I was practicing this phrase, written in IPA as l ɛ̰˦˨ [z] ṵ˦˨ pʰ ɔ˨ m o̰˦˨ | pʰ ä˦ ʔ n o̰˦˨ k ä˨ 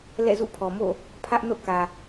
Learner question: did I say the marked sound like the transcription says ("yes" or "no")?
yes